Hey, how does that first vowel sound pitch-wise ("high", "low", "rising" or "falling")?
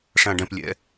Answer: low